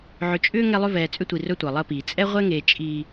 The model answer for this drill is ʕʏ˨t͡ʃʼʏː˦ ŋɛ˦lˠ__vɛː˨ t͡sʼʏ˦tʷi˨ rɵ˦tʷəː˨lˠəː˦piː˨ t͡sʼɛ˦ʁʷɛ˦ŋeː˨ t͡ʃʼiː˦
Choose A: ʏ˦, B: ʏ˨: A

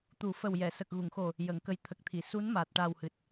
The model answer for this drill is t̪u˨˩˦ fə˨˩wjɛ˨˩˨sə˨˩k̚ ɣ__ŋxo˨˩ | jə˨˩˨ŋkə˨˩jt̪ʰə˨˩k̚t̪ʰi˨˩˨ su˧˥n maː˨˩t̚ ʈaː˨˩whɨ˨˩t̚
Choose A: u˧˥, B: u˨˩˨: B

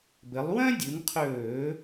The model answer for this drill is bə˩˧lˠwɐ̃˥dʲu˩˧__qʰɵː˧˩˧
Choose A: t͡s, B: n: B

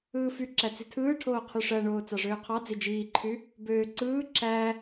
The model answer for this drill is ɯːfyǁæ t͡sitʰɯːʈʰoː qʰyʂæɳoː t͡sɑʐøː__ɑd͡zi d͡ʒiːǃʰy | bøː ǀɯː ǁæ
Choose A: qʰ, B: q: A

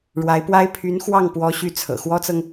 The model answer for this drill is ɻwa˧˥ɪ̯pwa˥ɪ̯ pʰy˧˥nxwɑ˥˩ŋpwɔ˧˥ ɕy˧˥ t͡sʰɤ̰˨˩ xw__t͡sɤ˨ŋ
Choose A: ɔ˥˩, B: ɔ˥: B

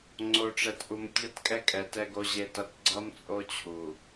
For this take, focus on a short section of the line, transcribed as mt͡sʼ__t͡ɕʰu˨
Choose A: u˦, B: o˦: B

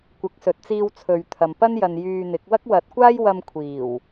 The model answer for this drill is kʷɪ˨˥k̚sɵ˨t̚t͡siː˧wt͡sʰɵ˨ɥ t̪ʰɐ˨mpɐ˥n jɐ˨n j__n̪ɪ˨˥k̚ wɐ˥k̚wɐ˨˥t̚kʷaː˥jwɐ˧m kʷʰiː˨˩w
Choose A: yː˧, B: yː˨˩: A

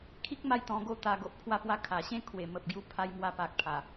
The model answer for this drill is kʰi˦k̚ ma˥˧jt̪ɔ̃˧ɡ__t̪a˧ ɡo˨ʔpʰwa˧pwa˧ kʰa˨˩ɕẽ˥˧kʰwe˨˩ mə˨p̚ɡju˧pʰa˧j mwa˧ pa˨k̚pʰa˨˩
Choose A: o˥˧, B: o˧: A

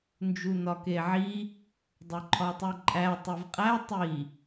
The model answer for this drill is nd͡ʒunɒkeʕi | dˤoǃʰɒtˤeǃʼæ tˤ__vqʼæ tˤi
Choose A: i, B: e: B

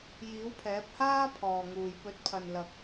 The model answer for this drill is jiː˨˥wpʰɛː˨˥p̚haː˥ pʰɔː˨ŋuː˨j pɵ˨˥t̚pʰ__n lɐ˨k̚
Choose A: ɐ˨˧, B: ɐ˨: B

